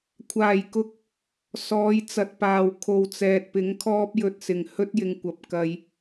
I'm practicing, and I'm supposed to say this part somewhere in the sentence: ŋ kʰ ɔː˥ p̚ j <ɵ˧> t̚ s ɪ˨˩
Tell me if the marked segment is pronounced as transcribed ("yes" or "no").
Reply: yes